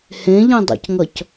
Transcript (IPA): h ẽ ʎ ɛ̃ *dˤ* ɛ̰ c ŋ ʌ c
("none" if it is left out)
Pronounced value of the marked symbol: dˤ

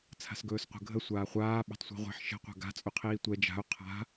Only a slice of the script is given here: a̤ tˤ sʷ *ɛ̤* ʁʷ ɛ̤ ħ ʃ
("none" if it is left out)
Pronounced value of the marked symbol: ɛ̤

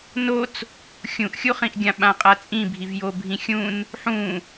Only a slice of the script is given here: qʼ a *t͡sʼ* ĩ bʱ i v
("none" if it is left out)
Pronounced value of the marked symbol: t͡sʼ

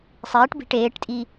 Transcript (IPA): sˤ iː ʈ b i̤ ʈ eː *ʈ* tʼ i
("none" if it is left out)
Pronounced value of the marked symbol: ʈ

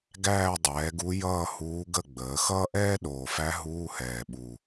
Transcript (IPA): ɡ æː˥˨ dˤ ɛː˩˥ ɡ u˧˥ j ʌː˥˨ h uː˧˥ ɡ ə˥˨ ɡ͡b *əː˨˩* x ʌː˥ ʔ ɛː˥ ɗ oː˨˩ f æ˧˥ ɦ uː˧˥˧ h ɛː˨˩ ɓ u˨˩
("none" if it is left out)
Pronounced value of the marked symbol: əː˩˥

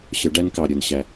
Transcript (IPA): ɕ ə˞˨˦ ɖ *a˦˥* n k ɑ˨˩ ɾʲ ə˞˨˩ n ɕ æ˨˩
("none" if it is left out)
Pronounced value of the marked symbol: æ˦˥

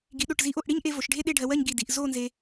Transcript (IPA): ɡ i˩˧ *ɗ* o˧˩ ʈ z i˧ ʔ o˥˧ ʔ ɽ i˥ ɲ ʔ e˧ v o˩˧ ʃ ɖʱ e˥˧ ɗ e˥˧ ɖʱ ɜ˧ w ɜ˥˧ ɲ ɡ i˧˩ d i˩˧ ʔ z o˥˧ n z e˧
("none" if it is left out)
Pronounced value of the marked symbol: ɗ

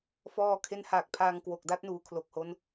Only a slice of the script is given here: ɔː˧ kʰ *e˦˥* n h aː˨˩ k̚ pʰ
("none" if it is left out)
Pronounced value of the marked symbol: e˦˥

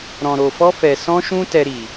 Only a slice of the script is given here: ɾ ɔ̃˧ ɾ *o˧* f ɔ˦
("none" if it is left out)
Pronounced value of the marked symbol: o˧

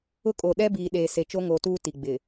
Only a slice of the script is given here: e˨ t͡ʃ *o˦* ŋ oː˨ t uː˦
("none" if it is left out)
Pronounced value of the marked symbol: o˦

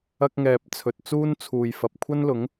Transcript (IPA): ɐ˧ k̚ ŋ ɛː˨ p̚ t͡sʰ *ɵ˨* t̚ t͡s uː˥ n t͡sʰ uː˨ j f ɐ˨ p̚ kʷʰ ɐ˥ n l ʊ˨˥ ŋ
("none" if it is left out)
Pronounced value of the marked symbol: ɵ˨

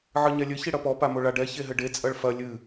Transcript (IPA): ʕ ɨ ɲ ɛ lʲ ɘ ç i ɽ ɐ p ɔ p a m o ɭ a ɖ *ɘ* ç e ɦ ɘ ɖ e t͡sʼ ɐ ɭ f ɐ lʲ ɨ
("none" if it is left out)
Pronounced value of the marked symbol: ɛ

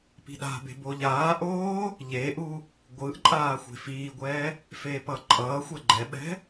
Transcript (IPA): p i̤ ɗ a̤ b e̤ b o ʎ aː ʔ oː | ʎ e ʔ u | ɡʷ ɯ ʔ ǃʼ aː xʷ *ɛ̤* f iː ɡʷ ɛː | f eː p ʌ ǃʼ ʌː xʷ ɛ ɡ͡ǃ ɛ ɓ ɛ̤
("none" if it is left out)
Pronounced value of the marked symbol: e̤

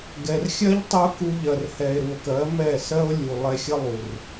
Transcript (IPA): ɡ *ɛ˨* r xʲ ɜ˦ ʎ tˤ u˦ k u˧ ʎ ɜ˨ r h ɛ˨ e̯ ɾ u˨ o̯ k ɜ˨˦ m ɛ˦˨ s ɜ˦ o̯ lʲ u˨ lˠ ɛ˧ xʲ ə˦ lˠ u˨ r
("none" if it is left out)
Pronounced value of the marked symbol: ɛ˨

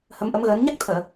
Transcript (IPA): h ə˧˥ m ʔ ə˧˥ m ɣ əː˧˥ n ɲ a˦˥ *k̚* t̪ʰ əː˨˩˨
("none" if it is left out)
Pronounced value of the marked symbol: k̚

